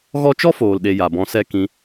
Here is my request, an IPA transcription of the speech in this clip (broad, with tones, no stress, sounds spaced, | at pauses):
ɣ ɔ˦ t͡ʃ ɔ˦ f oː˨ l ɗ e˨ j a˨ b ɔ̃˧ s ɛ˦ k ĩ˧